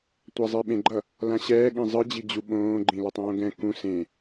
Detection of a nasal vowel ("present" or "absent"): present